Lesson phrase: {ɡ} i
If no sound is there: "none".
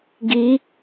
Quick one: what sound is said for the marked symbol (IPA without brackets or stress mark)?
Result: ɡ